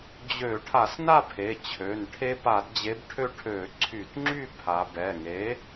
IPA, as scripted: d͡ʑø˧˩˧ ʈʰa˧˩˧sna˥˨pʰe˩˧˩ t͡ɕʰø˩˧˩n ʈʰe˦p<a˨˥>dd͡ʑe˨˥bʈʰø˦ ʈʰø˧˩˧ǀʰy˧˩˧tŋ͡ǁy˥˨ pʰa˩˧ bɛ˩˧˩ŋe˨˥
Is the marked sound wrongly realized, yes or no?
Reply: yes